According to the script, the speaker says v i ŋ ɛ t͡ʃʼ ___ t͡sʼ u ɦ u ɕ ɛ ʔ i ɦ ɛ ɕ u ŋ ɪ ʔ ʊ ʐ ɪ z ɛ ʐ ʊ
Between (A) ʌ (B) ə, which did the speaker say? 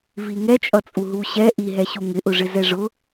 A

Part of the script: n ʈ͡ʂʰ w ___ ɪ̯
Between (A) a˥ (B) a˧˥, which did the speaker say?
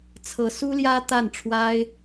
A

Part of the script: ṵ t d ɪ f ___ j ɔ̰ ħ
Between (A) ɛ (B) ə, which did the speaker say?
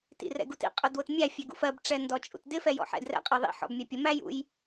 A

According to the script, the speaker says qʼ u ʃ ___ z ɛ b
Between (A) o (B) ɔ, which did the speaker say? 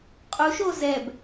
A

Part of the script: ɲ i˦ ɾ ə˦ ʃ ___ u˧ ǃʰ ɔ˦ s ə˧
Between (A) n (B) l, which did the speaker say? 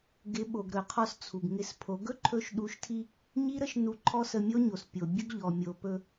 A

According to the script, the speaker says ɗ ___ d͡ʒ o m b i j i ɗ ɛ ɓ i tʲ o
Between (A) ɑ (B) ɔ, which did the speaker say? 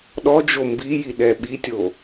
B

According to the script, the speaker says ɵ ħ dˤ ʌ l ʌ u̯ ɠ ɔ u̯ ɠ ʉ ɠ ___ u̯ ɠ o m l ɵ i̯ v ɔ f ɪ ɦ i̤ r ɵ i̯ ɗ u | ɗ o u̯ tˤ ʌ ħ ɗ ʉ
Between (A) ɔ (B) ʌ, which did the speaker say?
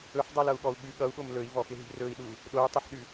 B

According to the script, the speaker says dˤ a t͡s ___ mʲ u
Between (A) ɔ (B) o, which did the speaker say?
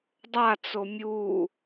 B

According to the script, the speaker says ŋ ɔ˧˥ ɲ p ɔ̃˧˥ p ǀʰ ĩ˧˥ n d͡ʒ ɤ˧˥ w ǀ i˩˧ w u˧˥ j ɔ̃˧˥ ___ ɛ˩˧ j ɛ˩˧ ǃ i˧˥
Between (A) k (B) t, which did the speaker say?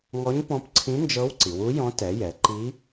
B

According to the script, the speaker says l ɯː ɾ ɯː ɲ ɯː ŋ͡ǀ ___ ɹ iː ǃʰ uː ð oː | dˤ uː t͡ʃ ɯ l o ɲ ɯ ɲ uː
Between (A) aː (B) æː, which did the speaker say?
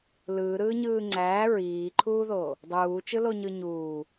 B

